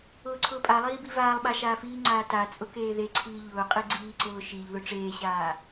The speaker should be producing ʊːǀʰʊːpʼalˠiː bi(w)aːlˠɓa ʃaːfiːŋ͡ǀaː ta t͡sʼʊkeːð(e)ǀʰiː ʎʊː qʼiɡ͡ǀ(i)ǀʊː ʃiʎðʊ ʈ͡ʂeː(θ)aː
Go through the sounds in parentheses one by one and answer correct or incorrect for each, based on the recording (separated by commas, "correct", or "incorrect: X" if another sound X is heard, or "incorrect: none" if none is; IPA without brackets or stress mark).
incorrect: v, correct, incorrect: iː, incorrect: ɕ